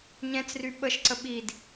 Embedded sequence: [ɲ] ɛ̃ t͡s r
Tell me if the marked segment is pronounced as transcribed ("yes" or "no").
yes